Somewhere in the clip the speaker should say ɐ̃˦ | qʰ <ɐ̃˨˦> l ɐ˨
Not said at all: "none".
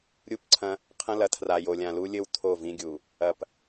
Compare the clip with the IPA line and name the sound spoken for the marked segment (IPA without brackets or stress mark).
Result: ɐ̃˦